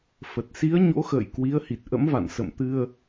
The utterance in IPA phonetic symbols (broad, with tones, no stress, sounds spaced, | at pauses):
f ə˨˩ t̚ s i˨˦ ə̯ ɲ o̰˧˥ x ə̰ː˧˨ j k w i˨˦ ə̯ h i˨˩ t̚ ʔ ə̰˧˥ m v a̰˧˨ n s ə̰˧˨ m t̪ ɨ˧ ə̯